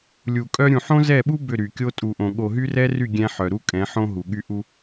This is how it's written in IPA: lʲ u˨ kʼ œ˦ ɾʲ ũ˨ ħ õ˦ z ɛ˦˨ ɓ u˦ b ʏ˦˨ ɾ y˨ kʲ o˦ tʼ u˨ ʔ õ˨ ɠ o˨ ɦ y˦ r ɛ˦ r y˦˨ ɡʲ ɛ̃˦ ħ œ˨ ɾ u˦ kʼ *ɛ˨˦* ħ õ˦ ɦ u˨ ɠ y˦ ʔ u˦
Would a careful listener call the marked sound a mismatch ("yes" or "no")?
yes